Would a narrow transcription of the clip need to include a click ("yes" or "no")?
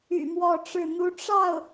no